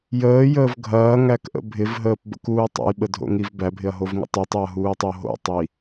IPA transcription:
j əː j əː v ɡʱ ɐː ŋ æ k ʔ ə̰ bʱ ɪ v ɦ əː p b ə̰ k uː tˤ ə̰ j ɓ ə dʱ o̰ ŋ i v b æ bʱ ɪ ɐ̯ ɦ o v ŋ ə̰ tˤ i tˤ o ɐ̯ ɦ uː tˤ o ɦ o̰ tˤ i

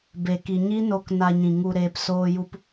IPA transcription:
b e˨ k i˨ ɲ i˦ n o˧ k n a˧ ɲ ĩ˨ ŋ u˧ ɾ eː˧ p s oː˧ j u˧ p

